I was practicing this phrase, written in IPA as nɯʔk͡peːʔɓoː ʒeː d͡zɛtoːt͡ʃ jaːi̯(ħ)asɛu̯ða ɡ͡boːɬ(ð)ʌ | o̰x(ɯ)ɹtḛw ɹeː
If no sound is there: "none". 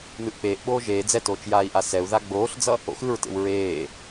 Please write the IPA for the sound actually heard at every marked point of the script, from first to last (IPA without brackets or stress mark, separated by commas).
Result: ʔ, d͡z, ɯ